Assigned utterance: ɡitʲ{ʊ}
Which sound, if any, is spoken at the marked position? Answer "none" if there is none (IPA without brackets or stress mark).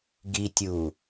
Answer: u